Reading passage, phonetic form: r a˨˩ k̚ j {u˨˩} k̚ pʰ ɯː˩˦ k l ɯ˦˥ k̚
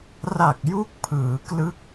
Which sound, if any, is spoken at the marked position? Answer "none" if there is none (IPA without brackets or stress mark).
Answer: u˦˥